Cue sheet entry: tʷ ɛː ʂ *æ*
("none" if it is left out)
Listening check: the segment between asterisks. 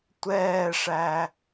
æ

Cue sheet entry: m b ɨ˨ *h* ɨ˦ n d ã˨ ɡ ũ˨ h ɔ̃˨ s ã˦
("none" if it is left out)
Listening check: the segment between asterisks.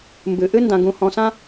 ʔ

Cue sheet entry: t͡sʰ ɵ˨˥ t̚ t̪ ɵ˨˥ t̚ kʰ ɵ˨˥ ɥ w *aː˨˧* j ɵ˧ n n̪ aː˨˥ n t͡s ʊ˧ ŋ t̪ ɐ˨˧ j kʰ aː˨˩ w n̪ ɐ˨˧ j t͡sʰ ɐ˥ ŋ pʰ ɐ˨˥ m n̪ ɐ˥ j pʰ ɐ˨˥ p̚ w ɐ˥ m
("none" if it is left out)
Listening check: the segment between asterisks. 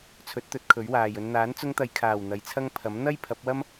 aː˨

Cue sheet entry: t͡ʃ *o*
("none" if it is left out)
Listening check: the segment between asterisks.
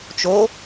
o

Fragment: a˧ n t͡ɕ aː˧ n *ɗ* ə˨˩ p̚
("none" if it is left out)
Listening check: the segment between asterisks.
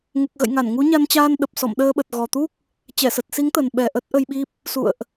ɗ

